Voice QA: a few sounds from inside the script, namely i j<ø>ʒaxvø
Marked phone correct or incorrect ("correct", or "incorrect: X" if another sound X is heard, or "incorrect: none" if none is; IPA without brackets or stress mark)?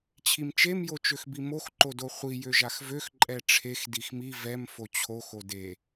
correct